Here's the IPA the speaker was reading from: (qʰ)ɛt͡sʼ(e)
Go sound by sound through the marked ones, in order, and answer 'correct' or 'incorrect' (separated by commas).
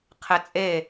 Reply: correct, correct